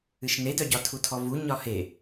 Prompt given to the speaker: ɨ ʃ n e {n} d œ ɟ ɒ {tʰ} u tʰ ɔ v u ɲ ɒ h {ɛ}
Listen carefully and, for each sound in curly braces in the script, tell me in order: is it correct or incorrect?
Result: incorrect, correct, incorrect

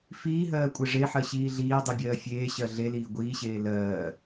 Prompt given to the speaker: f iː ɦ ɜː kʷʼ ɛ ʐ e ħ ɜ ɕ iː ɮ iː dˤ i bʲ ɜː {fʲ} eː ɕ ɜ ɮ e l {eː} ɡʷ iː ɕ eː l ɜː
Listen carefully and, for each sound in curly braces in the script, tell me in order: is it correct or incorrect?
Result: correct, incorrect

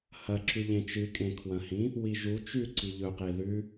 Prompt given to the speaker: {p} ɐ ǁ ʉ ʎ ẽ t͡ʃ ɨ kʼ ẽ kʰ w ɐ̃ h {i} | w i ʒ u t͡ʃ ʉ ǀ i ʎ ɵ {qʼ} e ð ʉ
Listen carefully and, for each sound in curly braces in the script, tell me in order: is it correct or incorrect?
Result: incorrect, incorrect, incorrect

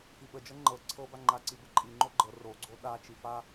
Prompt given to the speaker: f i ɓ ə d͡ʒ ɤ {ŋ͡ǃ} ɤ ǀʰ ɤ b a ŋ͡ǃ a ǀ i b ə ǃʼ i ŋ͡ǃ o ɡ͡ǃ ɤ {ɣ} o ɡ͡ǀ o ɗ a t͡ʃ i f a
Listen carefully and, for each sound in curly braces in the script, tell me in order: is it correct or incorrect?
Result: correct, incorrect

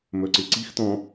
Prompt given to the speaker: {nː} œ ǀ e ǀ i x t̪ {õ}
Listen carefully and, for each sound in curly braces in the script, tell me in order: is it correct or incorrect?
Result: incorrect, incorrect

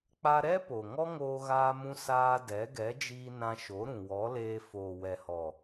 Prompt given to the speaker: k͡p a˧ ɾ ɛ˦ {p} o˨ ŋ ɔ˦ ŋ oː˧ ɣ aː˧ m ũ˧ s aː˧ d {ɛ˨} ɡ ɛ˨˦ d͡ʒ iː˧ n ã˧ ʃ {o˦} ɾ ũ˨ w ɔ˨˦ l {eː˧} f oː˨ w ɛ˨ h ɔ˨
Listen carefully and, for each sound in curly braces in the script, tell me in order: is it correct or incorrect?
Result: correct, incorrect, incorrect, correct

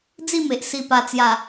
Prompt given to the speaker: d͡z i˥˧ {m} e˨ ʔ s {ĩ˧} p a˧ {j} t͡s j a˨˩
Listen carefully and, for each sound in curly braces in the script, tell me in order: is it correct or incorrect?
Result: correct, incorrect, incorrect

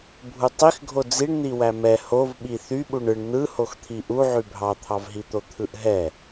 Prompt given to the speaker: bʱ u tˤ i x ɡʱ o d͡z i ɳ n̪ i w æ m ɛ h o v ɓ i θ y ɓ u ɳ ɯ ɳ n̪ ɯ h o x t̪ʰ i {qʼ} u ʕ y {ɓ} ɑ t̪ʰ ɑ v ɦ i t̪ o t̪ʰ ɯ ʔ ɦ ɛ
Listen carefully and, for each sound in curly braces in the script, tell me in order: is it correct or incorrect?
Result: incorrect, incorrect

